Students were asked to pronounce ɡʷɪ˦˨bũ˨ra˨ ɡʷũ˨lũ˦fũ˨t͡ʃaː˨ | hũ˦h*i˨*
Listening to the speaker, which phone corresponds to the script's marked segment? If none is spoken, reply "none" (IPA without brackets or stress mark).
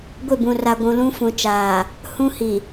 i˨